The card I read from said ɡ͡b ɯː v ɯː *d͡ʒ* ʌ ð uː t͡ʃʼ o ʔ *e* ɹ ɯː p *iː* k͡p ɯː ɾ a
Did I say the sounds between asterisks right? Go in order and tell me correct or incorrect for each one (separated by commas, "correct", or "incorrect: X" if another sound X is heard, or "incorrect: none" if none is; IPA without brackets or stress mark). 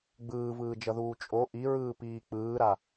correct, incorrect: i, correct